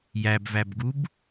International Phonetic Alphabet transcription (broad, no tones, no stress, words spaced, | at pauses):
jæbvæbɡub